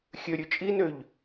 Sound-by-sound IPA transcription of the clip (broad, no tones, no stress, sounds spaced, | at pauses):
xʲ ø ɾʲ ʉ t͡ʃʼ i n ø ʎ